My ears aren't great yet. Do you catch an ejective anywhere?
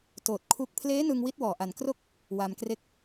no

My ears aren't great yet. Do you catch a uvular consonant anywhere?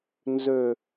no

